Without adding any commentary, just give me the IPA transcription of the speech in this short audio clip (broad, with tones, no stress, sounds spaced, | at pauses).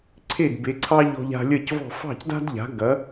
ǀʰ e˥˩ d b e˩˥ ǀʰ ɑ˥ ʎ ɔ̤˧ ʎ a̤˧ lʲ ɜ˥˩ c v ɔ̤˥˩ f ɑ̤˥˩ c d a̤˥ d ʎ a̤˩˥ ɡ ɐ˩˥